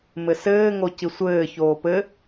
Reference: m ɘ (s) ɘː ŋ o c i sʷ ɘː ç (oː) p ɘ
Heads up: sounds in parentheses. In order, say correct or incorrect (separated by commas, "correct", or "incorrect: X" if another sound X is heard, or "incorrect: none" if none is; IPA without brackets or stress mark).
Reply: correct, correct